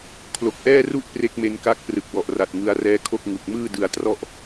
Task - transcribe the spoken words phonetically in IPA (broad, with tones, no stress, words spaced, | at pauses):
kʰlo˨˩k̚ʔɛː˥˩ru˥˩ʔ pre˦˥k̚me˧nka˦˥k̚ prɯ˨˩k̚wɔ˨˩ʔra˨˩t̚ ŋɯ˧a̯rɛː˦˥kʰo˥˩k̚ ŋu˨˩k̚mɯː˥˩dɯ˧a̯trɔ˥˩ʔ